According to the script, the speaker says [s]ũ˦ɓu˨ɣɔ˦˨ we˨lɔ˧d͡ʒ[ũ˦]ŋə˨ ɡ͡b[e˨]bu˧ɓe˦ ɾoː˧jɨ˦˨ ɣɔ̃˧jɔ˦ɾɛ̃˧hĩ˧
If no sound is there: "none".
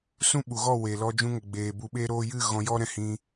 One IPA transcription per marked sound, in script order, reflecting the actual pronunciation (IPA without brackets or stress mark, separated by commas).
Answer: s, ũ˧, eː˨